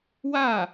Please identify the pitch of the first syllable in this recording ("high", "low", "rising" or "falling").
falling